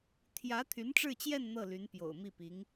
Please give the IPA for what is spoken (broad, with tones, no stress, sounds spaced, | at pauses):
t̪ʰ j ä˧˥ t̪ʰ y˧˥ n ʈ͡ʂ ɻ̩˥˧ t͡ɕ j ɛ˥˧ n n̪ ɤ˥˩ l y˧˥ n p j o̰˨˩ ʊ̯ m i˥˩ p i˧˥ ŋ